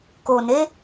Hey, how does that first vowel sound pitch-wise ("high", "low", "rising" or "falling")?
low